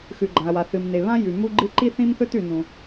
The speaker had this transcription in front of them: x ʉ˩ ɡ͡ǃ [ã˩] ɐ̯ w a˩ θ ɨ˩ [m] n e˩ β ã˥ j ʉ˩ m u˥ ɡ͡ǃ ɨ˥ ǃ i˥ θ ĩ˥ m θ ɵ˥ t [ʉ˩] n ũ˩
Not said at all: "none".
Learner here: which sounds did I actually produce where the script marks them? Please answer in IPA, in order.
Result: ã˩, m, ʉ˩

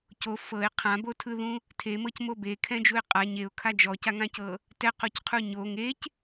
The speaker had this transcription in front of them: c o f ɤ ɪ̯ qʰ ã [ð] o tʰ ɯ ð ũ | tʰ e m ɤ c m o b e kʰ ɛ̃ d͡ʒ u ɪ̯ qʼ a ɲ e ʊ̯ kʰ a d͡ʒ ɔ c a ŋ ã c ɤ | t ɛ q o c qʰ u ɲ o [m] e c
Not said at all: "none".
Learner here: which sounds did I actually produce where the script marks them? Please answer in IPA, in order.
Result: b, ŋ

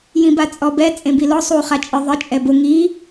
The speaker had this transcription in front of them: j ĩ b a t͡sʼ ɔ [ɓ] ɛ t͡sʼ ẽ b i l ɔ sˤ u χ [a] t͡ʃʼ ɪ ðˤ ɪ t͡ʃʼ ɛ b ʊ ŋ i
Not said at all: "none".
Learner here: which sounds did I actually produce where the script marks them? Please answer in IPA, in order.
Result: b, a

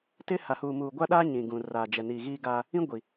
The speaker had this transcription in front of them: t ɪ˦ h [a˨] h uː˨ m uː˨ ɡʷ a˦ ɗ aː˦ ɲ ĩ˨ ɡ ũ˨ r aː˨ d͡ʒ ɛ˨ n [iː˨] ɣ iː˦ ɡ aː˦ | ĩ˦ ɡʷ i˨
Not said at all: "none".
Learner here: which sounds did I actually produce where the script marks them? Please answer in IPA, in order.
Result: a˨, iː˨

